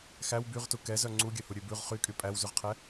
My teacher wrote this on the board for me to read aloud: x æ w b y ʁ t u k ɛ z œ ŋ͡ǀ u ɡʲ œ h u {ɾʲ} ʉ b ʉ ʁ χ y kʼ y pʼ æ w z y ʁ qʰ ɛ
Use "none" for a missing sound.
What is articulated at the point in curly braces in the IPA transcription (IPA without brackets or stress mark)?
ɾʲ